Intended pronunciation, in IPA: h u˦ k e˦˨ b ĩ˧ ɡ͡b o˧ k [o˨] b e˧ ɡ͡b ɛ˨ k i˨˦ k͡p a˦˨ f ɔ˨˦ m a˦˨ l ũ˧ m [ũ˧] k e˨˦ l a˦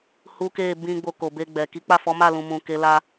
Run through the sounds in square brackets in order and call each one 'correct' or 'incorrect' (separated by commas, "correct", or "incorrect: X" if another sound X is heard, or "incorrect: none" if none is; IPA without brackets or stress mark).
correct, incorrect: ũ˨